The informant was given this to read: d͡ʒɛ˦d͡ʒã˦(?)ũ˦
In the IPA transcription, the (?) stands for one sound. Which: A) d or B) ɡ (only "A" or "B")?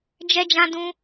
A